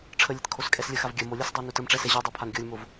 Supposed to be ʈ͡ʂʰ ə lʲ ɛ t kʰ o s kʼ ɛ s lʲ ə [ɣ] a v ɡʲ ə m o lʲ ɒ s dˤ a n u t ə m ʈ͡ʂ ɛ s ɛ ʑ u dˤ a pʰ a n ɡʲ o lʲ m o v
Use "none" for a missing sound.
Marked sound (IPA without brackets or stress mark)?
x